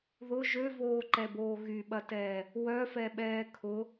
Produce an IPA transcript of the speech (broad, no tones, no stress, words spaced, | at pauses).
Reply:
ðʊ ʒøvoːǃɛboː ɣyɓɐtɛː | wœfɛɓɛː kʰʊ